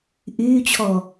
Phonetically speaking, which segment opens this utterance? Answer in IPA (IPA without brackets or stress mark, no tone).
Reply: ʔ